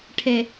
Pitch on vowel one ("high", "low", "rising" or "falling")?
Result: low